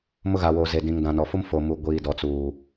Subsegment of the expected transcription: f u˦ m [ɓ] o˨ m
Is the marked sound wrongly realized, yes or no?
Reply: yes